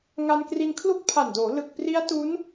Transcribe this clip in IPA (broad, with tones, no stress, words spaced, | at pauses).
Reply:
ŋa˧nkri˧nkʰlu˥˩k̚ pʰa˨˩ndoː˩˦ lɯ˨˩k̚pri˦˥a̯ tu˦˥n